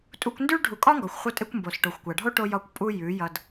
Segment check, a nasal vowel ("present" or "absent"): absent